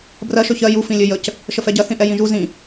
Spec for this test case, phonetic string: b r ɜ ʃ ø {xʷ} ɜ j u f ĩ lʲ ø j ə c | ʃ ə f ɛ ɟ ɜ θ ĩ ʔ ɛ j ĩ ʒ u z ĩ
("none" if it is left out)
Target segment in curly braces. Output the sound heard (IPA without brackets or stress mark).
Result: ç